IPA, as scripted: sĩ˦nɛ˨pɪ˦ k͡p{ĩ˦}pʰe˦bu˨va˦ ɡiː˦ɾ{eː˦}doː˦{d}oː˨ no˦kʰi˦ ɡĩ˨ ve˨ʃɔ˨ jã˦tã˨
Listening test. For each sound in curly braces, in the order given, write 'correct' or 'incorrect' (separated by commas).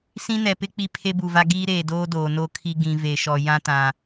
incorrect, incorrect, correct